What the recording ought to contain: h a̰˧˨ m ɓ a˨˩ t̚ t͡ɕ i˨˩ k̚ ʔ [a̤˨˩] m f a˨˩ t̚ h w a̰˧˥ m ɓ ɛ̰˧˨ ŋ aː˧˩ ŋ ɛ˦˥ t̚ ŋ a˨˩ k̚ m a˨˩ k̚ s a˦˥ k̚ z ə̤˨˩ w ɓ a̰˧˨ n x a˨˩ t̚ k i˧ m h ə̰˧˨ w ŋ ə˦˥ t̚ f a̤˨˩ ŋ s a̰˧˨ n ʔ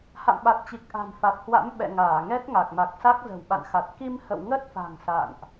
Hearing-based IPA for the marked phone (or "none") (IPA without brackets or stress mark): a̤˨˩